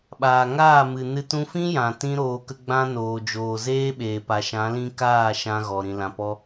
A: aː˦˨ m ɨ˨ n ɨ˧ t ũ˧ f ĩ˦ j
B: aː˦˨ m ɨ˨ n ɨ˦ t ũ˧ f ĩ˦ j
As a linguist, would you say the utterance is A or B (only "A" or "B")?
A